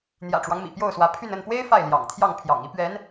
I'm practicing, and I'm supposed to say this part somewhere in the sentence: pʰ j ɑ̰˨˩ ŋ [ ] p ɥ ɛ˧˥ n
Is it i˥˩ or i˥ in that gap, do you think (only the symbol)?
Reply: i˥